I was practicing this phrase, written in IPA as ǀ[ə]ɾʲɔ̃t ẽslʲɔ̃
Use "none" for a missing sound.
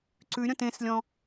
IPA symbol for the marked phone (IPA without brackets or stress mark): ʉ